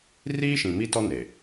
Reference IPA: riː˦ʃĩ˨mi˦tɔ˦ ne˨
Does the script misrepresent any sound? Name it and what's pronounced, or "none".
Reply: none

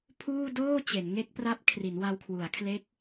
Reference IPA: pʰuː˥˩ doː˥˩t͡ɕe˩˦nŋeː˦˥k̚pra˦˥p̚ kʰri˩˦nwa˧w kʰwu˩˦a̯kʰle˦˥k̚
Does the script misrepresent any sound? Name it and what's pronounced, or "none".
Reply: eː˦˥ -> e˦˥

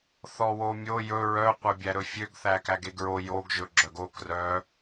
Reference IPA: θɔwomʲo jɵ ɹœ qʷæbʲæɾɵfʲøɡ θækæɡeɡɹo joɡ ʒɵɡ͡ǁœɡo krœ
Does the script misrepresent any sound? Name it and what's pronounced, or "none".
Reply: none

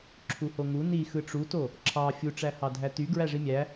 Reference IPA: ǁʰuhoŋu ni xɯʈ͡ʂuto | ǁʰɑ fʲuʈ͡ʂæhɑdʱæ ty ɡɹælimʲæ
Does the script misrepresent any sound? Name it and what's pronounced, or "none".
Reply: l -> ʐ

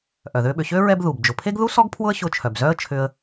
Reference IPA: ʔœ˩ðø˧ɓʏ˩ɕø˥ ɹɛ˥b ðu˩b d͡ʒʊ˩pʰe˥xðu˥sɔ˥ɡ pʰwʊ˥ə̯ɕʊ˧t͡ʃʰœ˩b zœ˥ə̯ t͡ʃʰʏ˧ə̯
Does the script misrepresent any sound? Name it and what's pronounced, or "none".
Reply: x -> ɡ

